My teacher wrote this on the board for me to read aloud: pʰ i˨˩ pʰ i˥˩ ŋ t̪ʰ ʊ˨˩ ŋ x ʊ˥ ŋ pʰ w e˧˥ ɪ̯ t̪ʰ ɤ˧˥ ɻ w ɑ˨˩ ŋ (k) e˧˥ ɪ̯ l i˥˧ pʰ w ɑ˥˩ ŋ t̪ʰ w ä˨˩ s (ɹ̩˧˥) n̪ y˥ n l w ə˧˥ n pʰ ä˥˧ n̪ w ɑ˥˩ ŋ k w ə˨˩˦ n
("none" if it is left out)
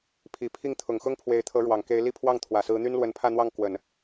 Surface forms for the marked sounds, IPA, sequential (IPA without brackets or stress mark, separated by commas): k, ɹ̩˧˥